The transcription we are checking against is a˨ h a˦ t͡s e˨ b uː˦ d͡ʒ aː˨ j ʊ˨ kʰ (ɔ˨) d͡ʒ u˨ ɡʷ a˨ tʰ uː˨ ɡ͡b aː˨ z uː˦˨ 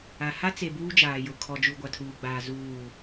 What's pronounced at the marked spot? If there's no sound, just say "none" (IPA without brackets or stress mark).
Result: ɔ˨